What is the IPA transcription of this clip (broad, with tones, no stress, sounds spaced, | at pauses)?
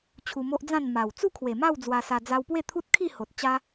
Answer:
t͡ɕʰ u˧ m o˦ ʔ d͡z ã˥˧ n m a˨˩ w t͡s u˥˧ kʰ w e˨˩ m a˥˧ w d͡z w a˧ s a˧ d͡z a˧ w p w e˥˧ t̪ʰ u˦ t̚ kʰ i˥˧ h o˨ t̚ t͡ɕ a˦